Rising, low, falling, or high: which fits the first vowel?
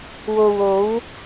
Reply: low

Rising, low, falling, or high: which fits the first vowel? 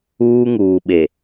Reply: high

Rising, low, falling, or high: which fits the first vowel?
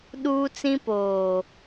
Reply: high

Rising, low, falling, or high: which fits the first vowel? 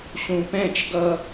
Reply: low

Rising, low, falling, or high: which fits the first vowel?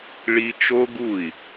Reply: high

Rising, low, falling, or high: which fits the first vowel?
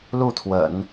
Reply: falling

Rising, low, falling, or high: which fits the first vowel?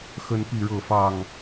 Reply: high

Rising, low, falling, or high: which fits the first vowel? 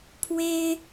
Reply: high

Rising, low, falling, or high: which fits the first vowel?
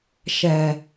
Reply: low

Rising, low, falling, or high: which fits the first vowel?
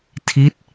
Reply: falling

